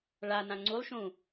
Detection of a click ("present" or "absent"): present